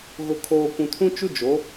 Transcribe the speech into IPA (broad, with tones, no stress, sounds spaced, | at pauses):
ɣ ʊ˨ kʰ oː˨ kʷ ũ˨ tʰ ũ˦ t͡ʃ u˦ d͡ʒ o˨˦